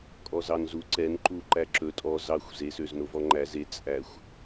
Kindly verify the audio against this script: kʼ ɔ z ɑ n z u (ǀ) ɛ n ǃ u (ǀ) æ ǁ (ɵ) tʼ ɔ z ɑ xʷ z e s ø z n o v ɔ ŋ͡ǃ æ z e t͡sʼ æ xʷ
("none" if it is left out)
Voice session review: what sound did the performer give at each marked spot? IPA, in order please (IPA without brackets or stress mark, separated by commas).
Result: ǀ, ǃ, ɵ